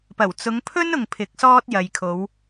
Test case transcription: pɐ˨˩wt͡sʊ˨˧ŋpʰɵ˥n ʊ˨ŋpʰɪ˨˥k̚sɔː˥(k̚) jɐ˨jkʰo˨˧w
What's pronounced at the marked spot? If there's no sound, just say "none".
t̚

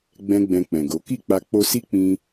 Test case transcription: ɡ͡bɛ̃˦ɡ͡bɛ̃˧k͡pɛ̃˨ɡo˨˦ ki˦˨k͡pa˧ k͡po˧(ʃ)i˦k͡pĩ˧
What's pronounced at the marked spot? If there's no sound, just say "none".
s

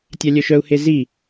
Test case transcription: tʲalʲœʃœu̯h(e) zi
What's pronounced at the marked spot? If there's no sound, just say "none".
e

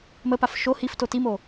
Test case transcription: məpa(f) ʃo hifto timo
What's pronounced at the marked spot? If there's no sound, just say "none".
f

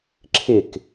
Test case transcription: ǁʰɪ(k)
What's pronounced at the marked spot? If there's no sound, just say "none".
k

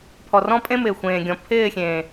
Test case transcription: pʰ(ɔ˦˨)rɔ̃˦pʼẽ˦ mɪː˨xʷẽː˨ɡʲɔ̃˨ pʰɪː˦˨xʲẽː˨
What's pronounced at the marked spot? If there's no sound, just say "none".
ɔ˨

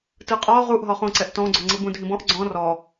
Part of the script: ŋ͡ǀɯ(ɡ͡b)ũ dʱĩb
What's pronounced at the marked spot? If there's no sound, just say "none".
b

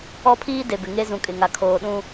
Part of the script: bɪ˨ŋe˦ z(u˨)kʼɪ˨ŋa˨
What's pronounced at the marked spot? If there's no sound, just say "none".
ũ˨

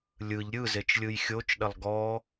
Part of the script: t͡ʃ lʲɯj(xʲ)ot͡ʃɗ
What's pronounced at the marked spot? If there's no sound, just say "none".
xʲ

